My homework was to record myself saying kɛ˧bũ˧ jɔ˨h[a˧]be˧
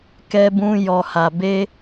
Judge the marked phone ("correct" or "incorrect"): incorrect